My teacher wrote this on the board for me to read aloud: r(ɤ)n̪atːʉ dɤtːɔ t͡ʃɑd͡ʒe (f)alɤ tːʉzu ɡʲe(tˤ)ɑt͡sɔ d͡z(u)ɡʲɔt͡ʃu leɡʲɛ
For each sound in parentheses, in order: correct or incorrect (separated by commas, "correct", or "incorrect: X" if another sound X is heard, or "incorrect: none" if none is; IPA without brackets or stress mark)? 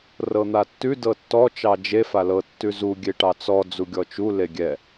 correct, correct, incorrect: ʈ, correct